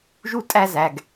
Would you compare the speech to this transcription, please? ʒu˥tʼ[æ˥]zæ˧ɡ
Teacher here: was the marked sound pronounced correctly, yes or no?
yes